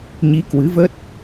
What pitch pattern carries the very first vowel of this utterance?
rising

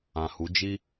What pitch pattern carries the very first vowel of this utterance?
low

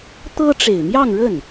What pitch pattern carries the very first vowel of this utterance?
high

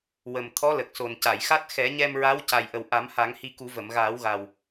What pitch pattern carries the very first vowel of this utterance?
low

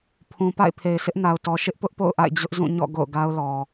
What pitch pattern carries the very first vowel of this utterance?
low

